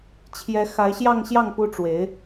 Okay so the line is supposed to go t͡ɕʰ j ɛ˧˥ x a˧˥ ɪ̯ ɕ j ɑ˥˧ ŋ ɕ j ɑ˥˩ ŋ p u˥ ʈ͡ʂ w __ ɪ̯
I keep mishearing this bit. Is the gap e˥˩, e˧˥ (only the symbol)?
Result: e˧˥